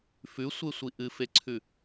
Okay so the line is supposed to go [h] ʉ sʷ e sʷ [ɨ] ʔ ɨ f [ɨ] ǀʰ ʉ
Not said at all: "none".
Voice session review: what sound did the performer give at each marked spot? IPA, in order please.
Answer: f, i, e

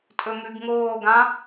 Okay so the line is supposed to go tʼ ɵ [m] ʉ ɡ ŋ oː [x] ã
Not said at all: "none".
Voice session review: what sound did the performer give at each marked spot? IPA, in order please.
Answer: m, ɡ

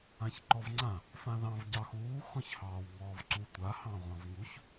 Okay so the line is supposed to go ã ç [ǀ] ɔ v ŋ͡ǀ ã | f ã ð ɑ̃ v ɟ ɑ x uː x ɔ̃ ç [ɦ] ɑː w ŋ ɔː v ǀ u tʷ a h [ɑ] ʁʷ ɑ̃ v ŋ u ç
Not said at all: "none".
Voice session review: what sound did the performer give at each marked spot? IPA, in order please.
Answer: ǃ, h, ɑ̃

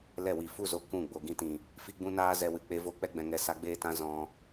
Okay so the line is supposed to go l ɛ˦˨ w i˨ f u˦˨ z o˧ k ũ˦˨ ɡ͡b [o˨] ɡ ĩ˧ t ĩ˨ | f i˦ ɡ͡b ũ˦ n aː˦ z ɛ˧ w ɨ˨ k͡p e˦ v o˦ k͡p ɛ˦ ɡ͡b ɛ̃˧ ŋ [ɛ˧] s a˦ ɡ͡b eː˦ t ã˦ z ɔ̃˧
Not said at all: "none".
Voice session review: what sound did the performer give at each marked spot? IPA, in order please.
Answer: o˨, ɛ˧

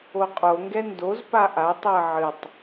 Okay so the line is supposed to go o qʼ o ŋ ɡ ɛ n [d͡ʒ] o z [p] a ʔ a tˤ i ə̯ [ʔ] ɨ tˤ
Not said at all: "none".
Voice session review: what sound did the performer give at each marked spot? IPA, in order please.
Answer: d, p, ʕ

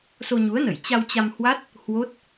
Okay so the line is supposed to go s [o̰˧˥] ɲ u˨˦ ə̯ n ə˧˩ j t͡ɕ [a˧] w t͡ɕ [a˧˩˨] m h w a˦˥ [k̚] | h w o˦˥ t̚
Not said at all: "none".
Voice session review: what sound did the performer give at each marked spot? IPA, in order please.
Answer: o˧, a˧, a˧, t̚

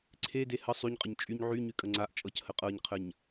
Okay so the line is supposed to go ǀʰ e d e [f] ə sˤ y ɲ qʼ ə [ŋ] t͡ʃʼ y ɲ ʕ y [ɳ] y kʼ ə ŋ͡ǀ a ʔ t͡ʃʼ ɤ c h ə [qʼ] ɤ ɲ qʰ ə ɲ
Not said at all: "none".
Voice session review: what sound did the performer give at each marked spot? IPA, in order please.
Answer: h, ɲ, ɲ, qʼ

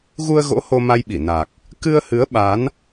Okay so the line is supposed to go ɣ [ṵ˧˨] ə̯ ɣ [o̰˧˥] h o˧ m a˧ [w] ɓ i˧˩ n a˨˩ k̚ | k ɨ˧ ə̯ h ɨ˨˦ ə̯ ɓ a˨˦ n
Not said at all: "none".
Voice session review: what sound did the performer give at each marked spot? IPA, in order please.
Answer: u˧, o̰˧˥, j

